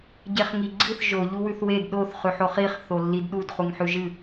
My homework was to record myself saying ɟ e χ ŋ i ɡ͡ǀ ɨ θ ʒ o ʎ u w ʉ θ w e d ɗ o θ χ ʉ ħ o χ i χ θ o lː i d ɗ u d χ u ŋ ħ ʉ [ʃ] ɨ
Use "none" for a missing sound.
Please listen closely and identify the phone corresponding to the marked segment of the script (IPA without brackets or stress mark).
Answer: ʒ